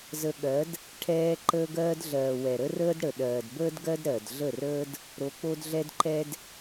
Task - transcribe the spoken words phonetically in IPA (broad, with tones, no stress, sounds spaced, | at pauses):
z ə˧ ɠ ɜ˨˦ d | ʈʰ ɛː˧ ǃ əː˧ ɡ ɜː˧ d ɮ ɜː˨ w ɛ˨ ɾ ə˦ r əː˦ d ɽ ə˨ ɗ ɜː˨ d b əː˦ d ɡ ɜ˦ d ɾ ɜ˨ d ɮ ə˦˨ r əː˦ d | ɾ o˧ k͡p o˦ d ɮ ɛ˦ d ǃ ɛ˦ d